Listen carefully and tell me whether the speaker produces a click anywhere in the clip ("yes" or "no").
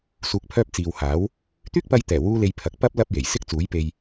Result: no